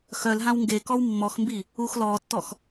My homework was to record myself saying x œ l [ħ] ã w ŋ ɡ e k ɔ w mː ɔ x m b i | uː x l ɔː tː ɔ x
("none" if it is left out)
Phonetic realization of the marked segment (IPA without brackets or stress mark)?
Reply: ɦ